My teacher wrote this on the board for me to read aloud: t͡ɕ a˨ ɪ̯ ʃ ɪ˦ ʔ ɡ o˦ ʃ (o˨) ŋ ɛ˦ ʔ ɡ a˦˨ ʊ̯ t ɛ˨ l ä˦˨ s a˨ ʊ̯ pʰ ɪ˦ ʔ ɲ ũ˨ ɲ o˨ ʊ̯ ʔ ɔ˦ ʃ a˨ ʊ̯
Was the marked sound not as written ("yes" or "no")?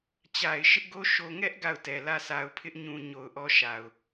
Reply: no